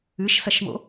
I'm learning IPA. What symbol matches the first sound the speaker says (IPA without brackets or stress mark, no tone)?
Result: ɨ